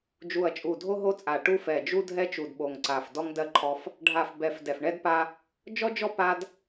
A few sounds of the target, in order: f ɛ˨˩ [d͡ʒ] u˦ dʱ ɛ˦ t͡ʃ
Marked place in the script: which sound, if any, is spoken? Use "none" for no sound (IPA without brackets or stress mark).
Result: d͡ʒ